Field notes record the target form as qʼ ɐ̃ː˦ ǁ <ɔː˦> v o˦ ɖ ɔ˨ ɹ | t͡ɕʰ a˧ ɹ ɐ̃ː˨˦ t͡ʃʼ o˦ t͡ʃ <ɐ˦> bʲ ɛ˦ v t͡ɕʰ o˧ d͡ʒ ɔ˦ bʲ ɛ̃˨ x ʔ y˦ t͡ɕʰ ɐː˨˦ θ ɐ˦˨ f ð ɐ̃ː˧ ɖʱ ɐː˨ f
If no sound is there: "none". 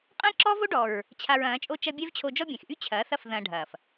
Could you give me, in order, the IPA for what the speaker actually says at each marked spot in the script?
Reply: ɔː˦, ɐ˦

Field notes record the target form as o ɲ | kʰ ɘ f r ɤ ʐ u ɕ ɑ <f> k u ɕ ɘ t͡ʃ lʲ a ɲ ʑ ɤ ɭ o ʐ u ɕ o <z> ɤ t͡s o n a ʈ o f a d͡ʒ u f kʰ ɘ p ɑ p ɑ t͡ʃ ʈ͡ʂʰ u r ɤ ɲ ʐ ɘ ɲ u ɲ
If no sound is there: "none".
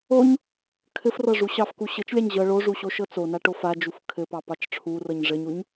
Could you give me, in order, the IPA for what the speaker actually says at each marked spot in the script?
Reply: f, ʃ

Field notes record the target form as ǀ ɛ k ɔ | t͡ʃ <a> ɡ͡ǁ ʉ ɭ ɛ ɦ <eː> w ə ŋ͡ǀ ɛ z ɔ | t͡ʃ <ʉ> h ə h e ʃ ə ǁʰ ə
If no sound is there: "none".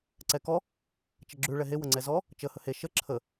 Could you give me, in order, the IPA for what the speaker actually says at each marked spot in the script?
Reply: ə, e, ə

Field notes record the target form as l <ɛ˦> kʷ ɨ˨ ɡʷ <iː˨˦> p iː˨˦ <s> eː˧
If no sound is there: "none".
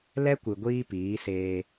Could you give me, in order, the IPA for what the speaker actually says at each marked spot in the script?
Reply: ɛ˦, iː˦, s

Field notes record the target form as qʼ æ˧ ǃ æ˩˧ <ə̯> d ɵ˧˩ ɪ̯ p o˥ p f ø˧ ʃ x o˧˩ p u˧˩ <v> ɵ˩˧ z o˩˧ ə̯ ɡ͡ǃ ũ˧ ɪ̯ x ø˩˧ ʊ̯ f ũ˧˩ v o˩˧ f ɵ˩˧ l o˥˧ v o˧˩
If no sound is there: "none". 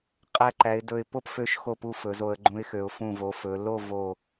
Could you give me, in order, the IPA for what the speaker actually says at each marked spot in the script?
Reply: ɪ̯, f

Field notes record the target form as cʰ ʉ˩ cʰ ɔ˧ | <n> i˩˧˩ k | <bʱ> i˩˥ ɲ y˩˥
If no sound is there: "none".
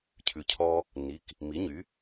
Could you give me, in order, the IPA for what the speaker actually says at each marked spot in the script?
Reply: n, m

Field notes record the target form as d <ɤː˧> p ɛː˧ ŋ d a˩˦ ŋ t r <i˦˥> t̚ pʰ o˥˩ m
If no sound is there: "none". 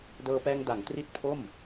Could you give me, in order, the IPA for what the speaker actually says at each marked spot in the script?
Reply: ɤː˧, i˦˥

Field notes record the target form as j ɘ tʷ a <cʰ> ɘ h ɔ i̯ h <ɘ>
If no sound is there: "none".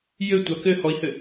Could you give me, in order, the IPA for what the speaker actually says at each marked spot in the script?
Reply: k, ɘ

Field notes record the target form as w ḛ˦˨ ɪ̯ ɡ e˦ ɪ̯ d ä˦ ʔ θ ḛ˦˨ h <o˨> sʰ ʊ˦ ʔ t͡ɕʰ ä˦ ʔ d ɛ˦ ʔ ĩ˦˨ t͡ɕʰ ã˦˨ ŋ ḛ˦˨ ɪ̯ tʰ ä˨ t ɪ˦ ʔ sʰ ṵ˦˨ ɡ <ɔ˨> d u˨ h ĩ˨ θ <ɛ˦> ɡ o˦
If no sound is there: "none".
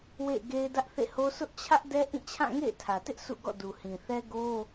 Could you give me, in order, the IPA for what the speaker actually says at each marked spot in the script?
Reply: o˦, ɔ̰˦˨, ɛ˦

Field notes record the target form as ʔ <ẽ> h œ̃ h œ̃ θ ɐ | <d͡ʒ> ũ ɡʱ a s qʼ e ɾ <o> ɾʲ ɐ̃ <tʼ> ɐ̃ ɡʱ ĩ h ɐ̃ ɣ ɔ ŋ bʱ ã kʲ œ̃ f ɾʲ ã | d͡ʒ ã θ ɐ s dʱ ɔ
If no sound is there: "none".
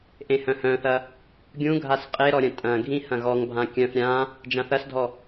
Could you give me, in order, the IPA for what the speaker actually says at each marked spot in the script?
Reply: ẽ, ɡʲ, ɔ, tʼ

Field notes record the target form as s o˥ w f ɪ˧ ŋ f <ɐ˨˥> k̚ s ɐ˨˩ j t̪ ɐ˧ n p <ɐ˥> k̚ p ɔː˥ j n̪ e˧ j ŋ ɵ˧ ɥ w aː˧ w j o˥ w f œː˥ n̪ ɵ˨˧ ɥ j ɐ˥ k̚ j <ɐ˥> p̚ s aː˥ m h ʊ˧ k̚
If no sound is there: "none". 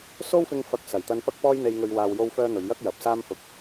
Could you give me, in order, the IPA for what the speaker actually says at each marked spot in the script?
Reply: ɐ˧, ɐ˥, ɐ˨

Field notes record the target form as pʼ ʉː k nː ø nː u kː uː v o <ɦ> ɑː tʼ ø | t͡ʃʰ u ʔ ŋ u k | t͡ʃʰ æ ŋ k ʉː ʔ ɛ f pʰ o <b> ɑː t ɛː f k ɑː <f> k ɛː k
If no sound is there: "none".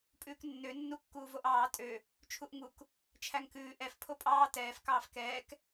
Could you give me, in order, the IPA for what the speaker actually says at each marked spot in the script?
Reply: ʔ, pʼ, f

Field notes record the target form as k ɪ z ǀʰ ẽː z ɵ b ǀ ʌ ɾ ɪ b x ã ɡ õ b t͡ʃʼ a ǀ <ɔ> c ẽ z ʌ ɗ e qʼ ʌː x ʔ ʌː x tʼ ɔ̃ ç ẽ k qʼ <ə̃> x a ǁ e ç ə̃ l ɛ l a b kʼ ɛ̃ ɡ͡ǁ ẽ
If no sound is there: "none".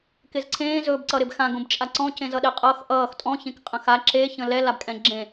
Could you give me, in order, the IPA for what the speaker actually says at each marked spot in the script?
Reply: ɔ̃, ə̃

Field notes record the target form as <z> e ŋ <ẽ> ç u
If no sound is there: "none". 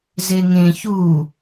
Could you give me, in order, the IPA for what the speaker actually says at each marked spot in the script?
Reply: z, ẽ

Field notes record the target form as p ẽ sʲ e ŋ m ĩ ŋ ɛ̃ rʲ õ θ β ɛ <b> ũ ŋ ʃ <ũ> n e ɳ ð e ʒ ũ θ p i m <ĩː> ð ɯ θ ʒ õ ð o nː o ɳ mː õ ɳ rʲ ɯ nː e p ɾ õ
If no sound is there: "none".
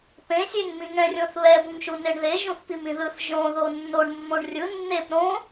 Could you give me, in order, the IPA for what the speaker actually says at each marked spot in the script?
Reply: b, u, ĩ

